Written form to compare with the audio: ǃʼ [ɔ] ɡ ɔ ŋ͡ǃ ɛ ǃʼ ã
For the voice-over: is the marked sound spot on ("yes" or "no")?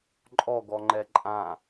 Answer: yes